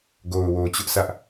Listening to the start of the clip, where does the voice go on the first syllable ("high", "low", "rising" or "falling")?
low